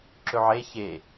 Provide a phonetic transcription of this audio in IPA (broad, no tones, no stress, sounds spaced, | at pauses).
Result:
ǁ ɵ ʕ e ç e